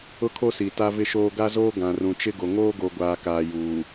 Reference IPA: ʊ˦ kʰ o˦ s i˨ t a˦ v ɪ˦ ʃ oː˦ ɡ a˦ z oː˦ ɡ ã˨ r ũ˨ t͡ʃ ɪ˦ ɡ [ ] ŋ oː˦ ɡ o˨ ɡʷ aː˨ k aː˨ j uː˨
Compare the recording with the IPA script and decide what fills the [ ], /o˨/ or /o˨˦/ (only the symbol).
o˨